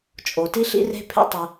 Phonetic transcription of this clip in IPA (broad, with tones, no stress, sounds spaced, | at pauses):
t͡ʃʼ o˩ t i˥ ɬ ḭ˥ r e̤˥ pʰ ḛ˥ tˤ i˩